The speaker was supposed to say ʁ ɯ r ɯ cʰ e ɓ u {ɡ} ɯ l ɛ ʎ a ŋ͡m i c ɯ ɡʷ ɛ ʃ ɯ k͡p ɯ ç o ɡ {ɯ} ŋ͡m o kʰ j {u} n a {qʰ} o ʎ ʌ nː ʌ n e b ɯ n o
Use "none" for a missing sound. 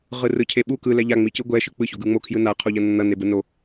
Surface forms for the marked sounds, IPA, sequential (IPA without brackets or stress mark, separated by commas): k, ɯ, ɯ, qʰ